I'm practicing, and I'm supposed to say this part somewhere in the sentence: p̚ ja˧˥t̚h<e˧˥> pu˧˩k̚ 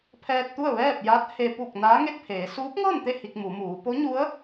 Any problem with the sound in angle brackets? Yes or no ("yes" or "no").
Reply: yes